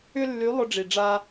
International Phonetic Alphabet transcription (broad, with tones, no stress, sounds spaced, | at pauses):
ʏ˥ lː y˧˥ lˠ ʊ˥ ɖ͡ʐ i˧ ɖ͡ʐ a˥